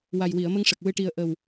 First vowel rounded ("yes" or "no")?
no